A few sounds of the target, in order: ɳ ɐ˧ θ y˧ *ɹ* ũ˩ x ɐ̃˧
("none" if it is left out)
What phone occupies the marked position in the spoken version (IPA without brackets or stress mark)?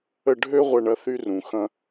r